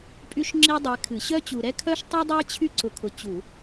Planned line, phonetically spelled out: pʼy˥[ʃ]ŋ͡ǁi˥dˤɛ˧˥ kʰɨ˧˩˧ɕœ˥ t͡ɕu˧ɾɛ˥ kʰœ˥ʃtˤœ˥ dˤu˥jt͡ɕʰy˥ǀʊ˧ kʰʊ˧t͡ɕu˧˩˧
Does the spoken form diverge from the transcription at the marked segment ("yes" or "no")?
no